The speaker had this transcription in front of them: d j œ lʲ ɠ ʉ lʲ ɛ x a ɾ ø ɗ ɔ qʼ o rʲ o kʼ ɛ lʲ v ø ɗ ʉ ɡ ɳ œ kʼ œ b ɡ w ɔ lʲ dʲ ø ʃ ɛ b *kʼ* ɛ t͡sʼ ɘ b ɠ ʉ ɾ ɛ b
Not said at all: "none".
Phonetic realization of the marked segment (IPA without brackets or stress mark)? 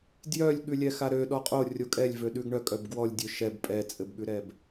pʼ